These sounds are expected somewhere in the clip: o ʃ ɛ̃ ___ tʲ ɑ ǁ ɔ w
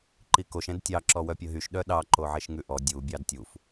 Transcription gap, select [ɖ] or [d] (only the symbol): d